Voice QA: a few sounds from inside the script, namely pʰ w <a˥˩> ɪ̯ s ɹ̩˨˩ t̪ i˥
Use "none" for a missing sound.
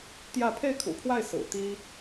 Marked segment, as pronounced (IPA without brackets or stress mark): a˥˩